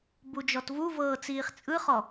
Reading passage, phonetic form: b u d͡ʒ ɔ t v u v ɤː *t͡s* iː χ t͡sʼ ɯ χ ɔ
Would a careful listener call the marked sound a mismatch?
no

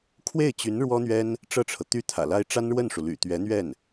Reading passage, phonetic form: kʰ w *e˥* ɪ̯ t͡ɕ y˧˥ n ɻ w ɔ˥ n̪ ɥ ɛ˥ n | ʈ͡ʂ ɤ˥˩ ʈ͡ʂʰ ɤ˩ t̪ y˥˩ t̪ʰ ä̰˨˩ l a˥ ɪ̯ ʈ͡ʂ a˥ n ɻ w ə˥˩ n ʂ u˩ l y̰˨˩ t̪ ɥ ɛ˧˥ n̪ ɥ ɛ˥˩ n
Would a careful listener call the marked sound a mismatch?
yes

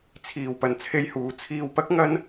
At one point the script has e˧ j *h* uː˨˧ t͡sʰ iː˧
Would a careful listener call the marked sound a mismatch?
no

